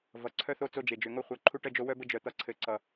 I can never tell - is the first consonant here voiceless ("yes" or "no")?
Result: no